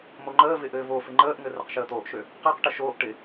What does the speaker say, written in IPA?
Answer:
moŋ͡ǃəːvɪ ʔɘːvofɪ ŋ͡ǃəːʔŋɘ rɪqʃəːt̪oːʔʃø | qəːqʈə ʃoːʔ ʈɪ

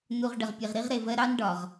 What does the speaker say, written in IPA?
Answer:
nu˨ʁ ɖə˨ʁpʲe˨ʁ ɾi˦ʁɾe˨vɜ˦ ɾɑ˦nɖɒ˨ʁ

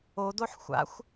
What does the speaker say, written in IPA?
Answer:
odoħ xʷa̰xʷ

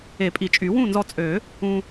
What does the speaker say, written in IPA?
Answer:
e˨˩˦pʼi˨˩˦t͡ʃʼy˨˩˦ wũ˥˨nzɔ˧t͡sʼø˨˩˦ | ũ˧

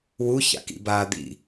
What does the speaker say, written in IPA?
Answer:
wu ça̰kḭ baːd̪ḭ

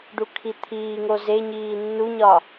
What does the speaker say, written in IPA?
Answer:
ɖukʰit̪ʰiːŋo ze ɲiːnːuɲɒ

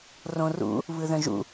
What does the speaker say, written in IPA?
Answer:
rõrṵ | βɯðœ̃ʒṵ

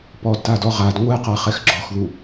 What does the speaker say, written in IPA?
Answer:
pɔdtadɔ ʁad ŋʷɛqaχɛx ɡ͡ǁɔxðu

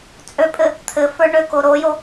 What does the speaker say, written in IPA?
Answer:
t͡sʼøpʼɘ | t̪ʰɘ fə˞ɳøko ɾojo

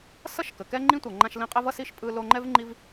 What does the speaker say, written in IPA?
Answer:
sʌ˥ʃkə˩kɛ˦ ŋ͡ǃĩ˥tʷʌ˨ ŋ͡ǃã˦ʃlĩ˦qʼɛ˥vʌ˥ si˥ʃpʼɯ˦ lo˦ ŋ͡ǃɛ˥vŋ͡ǃi˦v

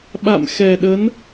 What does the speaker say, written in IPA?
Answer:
ɓa̰˧˨mxɛ˨˩ɗə˨˦n

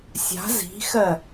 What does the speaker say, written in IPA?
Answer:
sʲa̤ zi̤xɜ

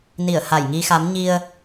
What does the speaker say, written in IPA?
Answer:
ni˧˩ə̯ha˧˩jŋi˧xa˨˦m ɲi˧ə̯

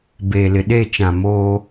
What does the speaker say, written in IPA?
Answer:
beː˨lɪ˨ɗe˦˨t͡ʃã˨ moː˦

